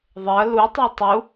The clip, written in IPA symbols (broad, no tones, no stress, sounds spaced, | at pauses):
ðˤ ɜ l u tˤ ɜ tˤ u